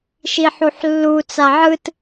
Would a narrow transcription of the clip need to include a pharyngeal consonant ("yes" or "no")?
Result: yes